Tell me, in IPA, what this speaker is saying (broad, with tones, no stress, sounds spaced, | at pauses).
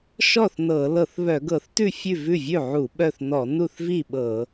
ʃ ɔ˥˩ θ n ɤ˧˩˧ l ɤ˧˩˧ θ β œ˧˩˧ ɡ ɤ˧˩˧ θ t ʉ˥˩ fʲ ʉ˥˩ v ʉ˥˩ vʲ ʉ˥˩ ʕ u˧˩˧ ɓ œ˥˩ θ n ɔ˧˩˧ n u˥˩ θ v i˥˩ ɓ ɤ˧˩˧